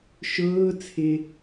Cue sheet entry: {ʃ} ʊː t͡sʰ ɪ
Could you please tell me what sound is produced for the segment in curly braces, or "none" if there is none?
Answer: ʃ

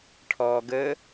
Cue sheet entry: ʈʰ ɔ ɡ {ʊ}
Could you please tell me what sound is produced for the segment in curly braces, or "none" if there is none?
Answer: ə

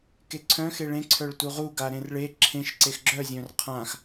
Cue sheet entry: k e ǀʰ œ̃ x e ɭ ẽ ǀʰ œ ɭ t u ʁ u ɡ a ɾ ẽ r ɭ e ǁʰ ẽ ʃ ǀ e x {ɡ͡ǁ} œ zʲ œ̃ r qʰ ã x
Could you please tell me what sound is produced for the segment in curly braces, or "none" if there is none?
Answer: ɡ͡ǁ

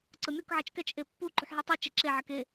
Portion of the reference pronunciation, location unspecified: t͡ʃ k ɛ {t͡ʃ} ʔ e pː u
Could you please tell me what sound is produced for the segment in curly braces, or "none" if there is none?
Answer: t͡ʃ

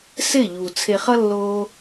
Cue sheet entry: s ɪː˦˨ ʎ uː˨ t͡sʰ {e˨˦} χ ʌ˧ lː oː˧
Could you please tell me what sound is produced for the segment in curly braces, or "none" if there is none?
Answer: e˨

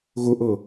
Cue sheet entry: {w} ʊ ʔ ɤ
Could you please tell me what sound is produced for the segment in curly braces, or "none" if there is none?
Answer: ɣ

